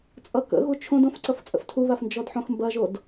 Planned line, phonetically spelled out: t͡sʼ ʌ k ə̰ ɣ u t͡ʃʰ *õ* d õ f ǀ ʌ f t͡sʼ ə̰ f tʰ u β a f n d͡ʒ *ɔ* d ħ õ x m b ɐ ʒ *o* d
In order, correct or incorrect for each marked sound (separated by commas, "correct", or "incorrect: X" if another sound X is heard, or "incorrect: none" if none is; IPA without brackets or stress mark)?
correct, correct, correct